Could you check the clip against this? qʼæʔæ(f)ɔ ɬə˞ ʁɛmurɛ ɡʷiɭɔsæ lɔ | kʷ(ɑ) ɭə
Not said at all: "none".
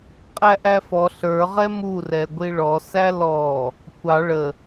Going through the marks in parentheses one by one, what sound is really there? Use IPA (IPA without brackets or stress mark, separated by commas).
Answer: f, ɑ